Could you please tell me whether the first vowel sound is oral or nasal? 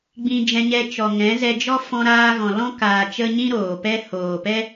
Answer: nasal